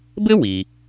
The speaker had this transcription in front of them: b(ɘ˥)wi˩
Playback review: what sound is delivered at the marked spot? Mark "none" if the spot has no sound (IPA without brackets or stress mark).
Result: ɘ˥